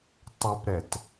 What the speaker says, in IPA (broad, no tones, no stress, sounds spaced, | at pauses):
tˤ ʉ p ɾ ɛ t